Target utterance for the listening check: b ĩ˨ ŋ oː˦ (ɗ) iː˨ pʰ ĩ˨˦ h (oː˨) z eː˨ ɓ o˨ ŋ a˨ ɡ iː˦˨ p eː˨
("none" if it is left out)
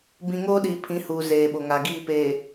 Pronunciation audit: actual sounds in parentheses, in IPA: ɗ, uː˨

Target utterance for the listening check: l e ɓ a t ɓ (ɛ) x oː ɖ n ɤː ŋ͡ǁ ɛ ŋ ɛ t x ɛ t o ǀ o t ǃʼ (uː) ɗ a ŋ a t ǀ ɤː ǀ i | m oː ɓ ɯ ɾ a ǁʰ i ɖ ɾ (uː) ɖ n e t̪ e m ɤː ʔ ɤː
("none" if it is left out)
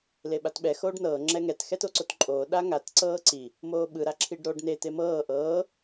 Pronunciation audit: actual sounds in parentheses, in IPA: ɛ, oː, oː

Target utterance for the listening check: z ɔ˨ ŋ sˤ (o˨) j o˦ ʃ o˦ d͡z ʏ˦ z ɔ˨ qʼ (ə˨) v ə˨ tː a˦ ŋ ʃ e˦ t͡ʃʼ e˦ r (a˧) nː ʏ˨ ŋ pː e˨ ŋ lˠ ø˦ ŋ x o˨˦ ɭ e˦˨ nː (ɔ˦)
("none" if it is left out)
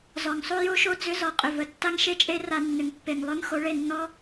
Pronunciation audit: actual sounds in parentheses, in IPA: o˦, ʏ˨, a˧, ɔ˦

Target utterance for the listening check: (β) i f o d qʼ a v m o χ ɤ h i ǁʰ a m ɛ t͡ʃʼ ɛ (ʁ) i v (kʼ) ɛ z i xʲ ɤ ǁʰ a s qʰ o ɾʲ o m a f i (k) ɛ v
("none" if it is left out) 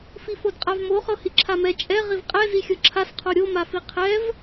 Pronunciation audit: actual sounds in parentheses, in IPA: f, ʁ, qʼ, qʰ

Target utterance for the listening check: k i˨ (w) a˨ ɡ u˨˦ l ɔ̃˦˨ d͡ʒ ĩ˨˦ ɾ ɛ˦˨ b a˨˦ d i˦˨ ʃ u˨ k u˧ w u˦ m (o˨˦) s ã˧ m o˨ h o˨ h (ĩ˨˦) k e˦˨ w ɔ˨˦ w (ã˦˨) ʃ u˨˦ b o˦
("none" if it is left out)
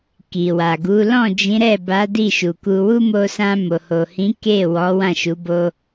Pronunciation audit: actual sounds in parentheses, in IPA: w, o˧, ĩ˨˦, ã˦˨

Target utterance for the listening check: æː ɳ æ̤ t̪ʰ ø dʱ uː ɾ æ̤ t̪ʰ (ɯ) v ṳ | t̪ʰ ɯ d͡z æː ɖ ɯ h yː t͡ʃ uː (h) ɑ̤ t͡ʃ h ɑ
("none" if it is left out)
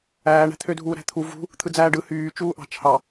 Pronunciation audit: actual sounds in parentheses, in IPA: u, ʔ

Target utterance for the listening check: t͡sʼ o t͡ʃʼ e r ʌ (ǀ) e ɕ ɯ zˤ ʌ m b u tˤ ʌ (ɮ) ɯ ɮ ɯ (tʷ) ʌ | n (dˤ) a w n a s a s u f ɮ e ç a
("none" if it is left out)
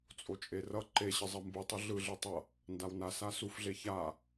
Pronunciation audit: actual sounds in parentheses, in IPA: ǃ, ɮ, tˤ, d

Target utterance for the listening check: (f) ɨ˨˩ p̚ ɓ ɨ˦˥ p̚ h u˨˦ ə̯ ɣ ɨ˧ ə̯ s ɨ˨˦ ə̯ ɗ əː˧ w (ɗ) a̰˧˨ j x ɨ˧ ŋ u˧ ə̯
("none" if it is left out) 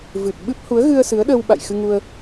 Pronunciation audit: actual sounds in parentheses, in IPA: v, ɓ

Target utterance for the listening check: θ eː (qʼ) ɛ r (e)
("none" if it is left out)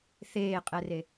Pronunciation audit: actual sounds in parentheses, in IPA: qʼ, e

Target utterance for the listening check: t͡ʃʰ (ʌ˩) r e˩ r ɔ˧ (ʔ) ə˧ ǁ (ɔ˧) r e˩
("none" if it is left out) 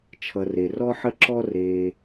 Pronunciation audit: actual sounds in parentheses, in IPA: ʌ˩, ħ, ɔ˧

